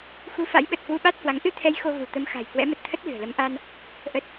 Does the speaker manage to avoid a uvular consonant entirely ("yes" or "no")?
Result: yes